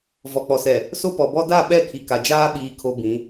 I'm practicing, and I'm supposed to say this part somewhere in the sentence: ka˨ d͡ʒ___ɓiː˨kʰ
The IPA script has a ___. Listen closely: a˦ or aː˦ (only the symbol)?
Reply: aː˦